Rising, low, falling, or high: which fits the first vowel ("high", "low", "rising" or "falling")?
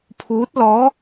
rising